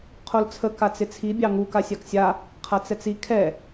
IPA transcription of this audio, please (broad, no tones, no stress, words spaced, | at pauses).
qʰolt͡sʰə kat͡sɪt͡sʰi bʲɑŋu kasʲaksʲa | qʰat͡sɛt͡si kʰɛ